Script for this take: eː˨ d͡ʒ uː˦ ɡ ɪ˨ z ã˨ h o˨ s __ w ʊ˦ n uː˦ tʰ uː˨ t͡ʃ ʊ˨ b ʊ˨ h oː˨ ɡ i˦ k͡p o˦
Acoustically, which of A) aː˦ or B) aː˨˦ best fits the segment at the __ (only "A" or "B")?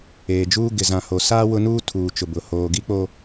A